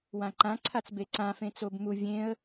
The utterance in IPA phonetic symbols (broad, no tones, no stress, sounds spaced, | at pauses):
w ã ǃ ã ǀʰ a t͡s b e ǀ ã f ẽ t͡s o b m u vʲ ẽ ə̯